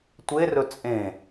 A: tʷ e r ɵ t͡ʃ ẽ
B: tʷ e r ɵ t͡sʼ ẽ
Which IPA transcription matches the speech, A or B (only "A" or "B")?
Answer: B